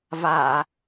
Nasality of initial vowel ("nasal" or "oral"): oral